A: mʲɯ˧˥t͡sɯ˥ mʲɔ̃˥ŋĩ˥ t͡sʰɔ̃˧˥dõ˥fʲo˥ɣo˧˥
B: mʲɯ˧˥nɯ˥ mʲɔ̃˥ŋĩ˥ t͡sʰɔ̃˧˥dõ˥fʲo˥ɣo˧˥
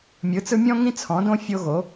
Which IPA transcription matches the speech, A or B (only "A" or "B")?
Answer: A